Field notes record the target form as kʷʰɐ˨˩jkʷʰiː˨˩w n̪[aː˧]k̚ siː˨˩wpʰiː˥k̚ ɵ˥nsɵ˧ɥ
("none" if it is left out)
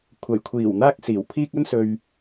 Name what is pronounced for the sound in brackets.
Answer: aː˧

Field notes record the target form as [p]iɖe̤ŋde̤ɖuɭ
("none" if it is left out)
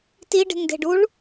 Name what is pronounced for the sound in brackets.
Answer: t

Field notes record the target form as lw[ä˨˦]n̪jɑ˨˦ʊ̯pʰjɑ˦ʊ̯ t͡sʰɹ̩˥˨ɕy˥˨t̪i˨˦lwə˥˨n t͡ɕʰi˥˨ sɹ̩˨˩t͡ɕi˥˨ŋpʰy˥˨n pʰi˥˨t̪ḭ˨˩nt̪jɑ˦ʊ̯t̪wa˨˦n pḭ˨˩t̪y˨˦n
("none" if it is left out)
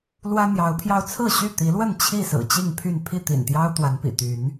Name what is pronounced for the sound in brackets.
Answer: ä˦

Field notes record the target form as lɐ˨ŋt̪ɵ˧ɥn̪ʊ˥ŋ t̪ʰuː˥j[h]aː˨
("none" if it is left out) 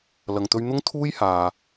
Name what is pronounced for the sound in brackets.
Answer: h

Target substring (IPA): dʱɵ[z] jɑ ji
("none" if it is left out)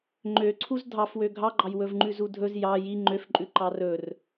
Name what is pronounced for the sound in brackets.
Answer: z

